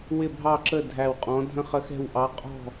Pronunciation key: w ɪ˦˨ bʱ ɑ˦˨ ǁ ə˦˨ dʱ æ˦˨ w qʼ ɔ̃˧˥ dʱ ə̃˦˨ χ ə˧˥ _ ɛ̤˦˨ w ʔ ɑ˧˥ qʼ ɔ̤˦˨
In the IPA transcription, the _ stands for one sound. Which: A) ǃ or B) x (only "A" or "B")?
B